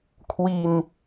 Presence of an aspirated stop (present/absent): present